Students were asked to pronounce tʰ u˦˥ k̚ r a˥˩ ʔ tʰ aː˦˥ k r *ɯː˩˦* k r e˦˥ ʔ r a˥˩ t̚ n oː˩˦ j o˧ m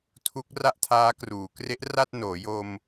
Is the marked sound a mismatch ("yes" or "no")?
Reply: yes